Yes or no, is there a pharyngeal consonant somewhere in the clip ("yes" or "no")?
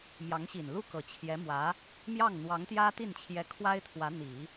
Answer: no